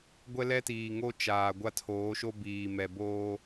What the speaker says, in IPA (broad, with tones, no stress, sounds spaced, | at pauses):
ɡʷ ɛ˦ l ɛ˦ t iː˨ ŋ o˦ t͡ʃ aː˨ ɡʷ a˦ tʰ oː˨˦ ʃ o˦ b iː˨ m ɛ˨ b oː˦